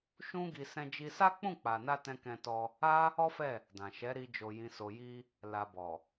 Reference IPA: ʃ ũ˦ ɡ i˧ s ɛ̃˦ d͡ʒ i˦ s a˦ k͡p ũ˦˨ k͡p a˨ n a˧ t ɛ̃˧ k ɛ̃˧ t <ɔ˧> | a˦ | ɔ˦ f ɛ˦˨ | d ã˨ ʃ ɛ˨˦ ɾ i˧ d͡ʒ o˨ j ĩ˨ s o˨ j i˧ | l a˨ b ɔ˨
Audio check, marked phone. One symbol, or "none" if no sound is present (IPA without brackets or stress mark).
ɔ˧